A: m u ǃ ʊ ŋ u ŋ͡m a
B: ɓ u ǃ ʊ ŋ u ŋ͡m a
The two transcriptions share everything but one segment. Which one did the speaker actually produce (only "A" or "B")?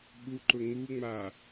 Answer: B